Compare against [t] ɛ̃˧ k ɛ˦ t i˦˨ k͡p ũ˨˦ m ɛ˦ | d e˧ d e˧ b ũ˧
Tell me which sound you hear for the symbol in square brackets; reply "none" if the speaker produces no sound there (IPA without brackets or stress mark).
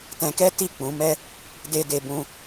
t